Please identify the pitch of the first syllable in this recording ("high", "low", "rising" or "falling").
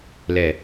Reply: low